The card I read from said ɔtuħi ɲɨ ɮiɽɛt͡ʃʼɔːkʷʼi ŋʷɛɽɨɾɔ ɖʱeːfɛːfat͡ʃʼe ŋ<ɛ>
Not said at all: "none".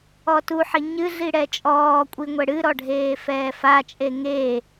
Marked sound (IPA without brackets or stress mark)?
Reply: e